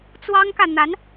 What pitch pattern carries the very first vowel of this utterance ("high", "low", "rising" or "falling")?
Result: high